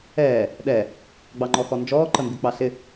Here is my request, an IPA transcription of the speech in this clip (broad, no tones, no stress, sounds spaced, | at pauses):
ɛː | ɗ ɛ | ɡ͡b ɑ ŋ͡ǃ ɔ x ɔ n d͡ʒ ɔː ǃ ə m b i k͡p ɑ ɬ ɪ